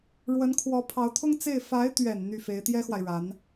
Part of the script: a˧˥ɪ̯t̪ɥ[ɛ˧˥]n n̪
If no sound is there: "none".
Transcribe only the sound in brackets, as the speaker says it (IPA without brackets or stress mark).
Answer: ɛ˨˩